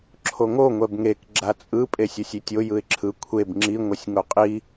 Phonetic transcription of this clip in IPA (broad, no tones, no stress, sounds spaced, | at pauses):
ǁʰ o ŋ o ŋʷ ɛ b ŋ e k ɡ͡ǁ a t͡sʼ ɯ pʼ e sʲ o sʲ i tʲ o j ɯ ɪ̯ ǁʰ ɯ kʷʰ e b ŋ͡ǁ i ŋʷ ɛ sʲ ŋ o qʼ i